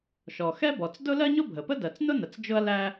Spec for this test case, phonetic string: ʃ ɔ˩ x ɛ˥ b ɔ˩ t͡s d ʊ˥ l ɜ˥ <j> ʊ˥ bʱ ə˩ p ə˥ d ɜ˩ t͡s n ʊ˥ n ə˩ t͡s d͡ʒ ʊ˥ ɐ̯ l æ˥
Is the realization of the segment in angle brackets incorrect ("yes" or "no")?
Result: yes